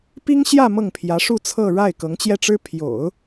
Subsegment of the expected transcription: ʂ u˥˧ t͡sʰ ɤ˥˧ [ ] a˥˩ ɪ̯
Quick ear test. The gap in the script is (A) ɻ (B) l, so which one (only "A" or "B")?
A